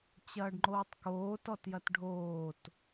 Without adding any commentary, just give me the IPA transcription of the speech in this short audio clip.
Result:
t͡ɕ ɐː ɖ ŋ͡ǃ oː tˤ k oː t ɔ t j ɐ t ɖʱ oː t

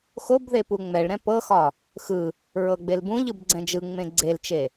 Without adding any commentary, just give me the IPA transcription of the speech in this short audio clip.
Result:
x o b ð e p u ŋ͡m ɛ ɭ ɾ ɛ̃ p ɤ x ɒ | x ɯ | ɹ ɤ ɡ͡b e l b ũ ʎ ɯ b ɡ͡ǀ ɛ̃ d͡ʒ ɯ ŋ͡m ẽ ɡ͡ǀ e l t͡ʃ e

